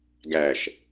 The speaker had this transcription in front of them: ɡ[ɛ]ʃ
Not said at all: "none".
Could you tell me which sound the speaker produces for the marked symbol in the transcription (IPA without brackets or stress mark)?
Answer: æ